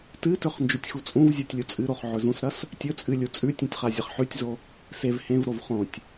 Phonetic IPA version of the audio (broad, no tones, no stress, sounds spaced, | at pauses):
t ɨ t ɵ χ n d͡ʒ ʉ tʲ x u t͡sʼ ũ v zʲ o tʲ lʲ u t͡sʼ ɨ ɾ o χ ʕ ɵ z ũ s ɾ ɐ s | tʲ ɵ t͡sʼ ɨ lʲ u t͡sʼ ʉ tʲ ũ tʲ χ a zʲ ɐ χ ħ ʉ tʲ z o | s e v h ẽ v ɾ o v χ õ tʲ